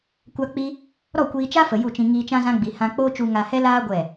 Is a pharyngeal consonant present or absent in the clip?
absent